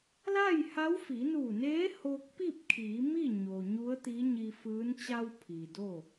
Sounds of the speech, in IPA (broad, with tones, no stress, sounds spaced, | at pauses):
l a˥˨ j h a˧˥ w f i˩˧ n uː˧˩ n eː˧˥ h oː˧ k̚ p i˥˨ p̚ kʰ iː˩˧ m i˥˨ ɲ o˩ ɲ u˧˥ ə̯ t̪ i˧˥ ɲ i˧ f ɯː˧˥ n t͡ɕ a˧ w pʰ iː˩ d o˥˨